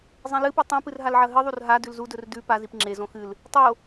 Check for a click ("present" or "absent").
present